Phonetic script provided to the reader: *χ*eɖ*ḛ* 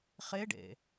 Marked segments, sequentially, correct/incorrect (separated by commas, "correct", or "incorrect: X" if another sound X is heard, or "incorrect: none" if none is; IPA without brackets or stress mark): correct, correct